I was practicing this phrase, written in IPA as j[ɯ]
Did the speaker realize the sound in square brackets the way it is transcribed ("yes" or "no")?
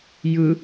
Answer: yes